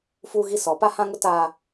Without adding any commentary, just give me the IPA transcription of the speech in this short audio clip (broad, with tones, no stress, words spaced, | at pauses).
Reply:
fuː˦ɣi˦sɔ˨˦ pa˦hã˦ŋʊ˦ taː˦